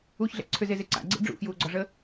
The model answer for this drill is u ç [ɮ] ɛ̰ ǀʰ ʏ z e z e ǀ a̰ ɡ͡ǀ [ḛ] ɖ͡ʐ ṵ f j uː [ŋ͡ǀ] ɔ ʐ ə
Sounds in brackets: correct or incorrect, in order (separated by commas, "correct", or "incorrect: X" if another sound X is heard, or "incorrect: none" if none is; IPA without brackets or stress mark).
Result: correct, correct, incorrect: ɡ͡ǀ